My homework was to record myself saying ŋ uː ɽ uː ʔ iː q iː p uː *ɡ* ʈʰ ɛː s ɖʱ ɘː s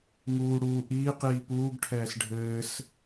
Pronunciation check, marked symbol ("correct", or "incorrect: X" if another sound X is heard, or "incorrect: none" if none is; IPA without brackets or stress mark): correct